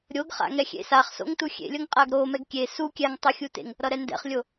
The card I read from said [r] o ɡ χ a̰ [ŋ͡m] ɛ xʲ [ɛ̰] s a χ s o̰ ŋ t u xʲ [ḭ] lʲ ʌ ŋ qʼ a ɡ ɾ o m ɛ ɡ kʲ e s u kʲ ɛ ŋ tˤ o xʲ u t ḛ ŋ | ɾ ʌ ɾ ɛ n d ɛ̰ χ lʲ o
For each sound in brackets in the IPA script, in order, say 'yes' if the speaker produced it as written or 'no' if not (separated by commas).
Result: no, no, no, no